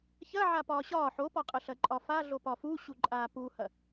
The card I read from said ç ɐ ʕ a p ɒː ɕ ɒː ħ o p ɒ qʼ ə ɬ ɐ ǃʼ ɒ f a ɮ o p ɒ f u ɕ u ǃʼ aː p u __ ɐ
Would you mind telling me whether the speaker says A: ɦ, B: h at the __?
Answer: B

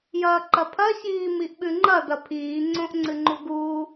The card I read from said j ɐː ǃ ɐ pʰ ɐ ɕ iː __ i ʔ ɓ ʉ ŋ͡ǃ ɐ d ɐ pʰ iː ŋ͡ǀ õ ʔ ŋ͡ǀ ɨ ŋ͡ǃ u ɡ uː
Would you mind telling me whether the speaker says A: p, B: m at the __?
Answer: B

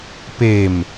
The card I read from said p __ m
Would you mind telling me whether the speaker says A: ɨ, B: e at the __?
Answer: B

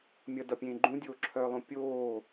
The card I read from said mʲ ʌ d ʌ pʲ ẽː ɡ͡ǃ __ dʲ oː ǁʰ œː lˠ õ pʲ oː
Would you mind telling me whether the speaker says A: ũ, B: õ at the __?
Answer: A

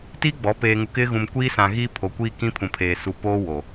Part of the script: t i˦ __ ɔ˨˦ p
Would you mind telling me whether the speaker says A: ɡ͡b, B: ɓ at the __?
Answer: A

